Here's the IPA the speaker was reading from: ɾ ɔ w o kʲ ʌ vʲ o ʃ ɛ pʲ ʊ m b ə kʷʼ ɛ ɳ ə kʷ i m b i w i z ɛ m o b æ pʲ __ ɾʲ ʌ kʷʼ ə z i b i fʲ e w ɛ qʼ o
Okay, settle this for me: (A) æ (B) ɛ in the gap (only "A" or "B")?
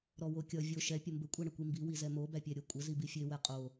A